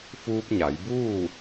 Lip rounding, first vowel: rounded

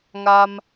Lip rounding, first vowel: unrounded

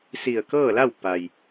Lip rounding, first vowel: unrounded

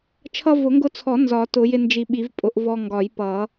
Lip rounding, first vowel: unrounded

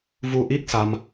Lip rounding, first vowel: rounded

